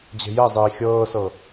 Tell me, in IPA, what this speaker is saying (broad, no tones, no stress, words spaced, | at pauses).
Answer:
d͡ʑe̤jɛzˤiː xʲɤːsɤ